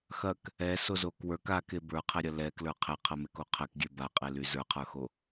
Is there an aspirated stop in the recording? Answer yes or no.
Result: yes